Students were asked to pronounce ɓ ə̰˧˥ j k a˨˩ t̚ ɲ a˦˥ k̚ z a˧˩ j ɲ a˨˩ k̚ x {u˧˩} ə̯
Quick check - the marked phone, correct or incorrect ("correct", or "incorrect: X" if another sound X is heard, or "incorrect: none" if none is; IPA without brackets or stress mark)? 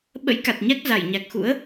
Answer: incorrect: ṵ˧˥